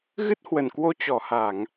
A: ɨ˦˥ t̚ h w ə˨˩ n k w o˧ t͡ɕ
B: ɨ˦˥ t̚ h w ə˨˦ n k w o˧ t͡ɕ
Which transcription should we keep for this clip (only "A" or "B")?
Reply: A